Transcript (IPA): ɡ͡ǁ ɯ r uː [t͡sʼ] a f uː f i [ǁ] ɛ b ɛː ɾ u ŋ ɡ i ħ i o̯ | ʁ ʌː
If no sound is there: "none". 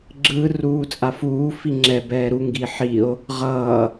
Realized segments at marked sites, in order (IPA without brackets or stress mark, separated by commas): t͡sʼ, ŋ͡ǁ